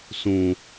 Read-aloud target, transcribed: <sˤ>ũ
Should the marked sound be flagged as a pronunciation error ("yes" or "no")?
yes